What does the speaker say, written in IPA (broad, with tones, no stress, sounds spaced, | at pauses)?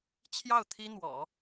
t͡ɕʰ j ɑ˥˩ ʊ̯ t̪ʰ i˥ n̪ w ɔ̰˨˩˦